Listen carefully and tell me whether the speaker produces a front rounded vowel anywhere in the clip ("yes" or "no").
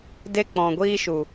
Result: no